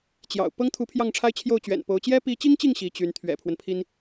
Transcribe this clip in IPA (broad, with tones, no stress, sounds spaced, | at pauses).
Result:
t͡ɕ j ɑ̰˨˩ ʊ̯ p ɤ˥ ŋ t̪ʰ u˧˥ pʰ j ɑ˥˩ ŋ ʈ͡ʂʰ a˥ ɪ̯ t͡ɕʰ j o˥˩ ʊ̯ t͡ɕ ɥ ɛ̰˨˩ n p o˧˥ ʊ̯ t͡ɕ j ɛ˥ p i˧˥ t͡ɕ i˥ ŋ t͡ɕ i˥˩ ŋ ɕ i˧˥ t͡ɕ y˧˥ n t̪ʰ ɥ ɛ̰˨˩ pʰ w ə˦ n pʰ i˥ n